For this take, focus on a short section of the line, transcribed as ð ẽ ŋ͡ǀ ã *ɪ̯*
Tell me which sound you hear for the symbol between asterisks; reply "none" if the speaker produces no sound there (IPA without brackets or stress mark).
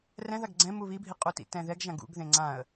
ə̯